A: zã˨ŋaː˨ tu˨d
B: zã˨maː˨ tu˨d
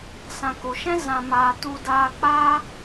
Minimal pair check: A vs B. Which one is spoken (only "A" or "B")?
B